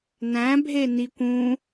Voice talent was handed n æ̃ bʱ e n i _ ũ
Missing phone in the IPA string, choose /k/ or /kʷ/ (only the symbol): kʷ